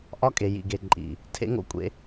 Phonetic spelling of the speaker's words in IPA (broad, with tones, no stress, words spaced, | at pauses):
ʔɒ˦kʼe˨ jḭ˨ɡe˨ǃʼḭ˨ | tʰḛ˦ŋo̰˦kʷʼḛ˦